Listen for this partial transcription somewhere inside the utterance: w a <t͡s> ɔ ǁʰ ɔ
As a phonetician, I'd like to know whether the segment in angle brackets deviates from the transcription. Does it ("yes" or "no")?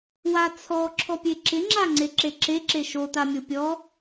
yes